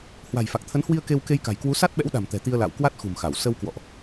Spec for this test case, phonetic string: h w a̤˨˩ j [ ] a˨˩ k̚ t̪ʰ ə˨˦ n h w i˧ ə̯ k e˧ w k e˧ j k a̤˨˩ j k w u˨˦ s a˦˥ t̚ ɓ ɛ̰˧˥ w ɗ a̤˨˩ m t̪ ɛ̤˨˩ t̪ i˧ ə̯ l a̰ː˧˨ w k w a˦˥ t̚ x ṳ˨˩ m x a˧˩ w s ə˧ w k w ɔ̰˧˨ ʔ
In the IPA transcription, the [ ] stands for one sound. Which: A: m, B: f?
B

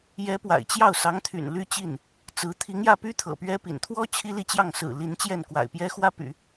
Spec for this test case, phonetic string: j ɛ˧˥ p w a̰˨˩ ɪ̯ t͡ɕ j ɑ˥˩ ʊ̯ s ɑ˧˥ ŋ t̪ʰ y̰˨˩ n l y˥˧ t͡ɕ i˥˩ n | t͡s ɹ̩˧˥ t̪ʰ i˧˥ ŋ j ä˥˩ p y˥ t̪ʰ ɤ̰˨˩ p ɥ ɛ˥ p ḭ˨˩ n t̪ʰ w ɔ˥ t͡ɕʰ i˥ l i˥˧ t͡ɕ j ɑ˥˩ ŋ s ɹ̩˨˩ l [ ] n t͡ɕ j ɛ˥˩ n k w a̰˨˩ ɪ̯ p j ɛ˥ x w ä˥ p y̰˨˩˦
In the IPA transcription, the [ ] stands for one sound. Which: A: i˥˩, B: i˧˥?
B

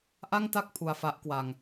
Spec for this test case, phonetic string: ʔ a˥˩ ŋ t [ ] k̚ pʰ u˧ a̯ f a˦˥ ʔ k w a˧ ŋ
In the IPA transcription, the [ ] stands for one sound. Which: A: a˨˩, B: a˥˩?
B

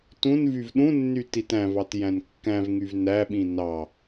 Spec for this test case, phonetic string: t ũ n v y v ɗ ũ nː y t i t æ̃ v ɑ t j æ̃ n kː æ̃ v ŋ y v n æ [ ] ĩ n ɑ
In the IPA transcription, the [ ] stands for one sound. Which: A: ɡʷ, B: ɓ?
B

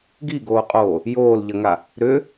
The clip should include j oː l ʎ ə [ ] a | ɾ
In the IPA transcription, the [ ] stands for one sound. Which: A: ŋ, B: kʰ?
A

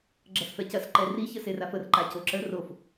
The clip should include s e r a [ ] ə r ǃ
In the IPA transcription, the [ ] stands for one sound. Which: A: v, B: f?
B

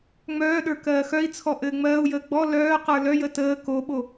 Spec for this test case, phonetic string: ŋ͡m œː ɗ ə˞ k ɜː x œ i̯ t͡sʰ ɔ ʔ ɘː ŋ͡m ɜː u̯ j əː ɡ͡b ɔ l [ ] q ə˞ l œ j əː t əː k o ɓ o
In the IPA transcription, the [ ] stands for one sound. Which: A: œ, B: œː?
B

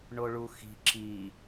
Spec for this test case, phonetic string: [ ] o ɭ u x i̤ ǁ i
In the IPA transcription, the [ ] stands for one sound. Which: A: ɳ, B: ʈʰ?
A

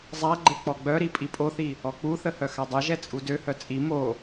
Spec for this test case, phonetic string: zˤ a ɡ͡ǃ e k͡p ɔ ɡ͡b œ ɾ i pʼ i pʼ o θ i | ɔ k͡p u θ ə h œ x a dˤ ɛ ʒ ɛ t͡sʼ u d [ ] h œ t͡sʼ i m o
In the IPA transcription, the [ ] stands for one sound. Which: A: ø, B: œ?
A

